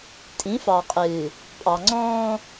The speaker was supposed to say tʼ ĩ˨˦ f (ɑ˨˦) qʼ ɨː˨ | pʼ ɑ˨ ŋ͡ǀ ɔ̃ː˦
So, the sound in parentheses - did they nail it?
no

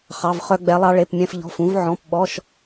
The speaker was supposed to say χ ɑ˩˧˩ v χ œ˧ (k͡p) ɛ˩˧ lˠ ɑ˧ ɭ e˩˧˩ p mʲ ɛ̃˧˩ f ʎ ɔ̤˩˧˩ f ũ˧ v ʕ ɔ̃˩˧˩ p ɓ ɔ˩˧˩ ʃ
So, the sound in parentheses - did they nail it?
no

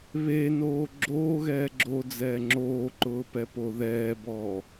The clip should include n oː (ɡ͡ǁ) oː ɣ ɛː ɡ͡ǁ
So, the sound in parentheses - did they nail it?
yes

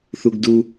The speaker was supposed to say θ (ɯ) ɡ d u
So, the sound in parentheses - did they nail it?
no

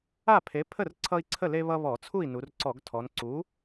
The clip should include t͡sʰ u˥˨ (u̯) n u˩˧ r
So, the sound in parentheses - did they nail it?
no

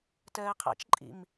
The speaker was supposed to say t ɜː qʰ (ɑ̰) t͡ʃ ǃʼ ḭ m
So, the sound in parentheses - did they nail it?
yes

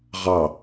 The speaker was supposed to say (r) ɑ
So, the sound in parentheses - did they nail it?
no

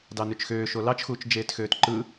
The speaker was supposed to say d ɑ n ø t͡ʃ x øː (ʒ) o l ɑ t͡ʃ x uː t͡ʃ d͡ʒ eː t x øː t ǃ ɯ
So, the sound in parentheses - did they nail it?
no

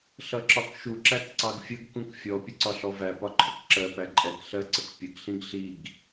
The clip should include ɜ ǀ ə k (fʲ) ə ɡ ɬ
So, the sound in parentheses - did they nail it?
no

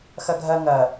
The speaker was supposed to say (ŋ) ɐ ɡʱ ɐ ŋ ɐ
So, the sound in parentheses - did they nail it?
no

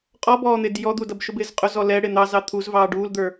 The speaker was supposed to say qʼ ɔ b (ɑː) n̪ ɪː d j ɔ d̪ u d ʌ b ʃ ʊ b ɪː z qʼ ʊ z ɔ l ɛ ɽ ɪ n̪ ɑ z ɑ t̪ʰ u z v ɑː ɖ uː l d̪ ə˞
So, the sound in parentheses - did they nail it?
no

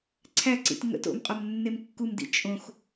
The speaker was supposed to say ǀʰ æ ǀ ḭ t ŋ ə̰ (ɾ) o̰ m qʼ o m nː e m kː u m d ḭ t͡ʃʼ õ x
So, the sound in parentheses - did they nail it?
no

